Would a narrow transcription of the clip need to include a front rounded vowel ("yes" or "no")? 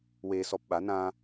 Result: no